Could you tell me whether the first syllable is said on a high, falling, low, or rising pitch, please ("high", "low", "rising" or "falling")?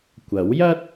rising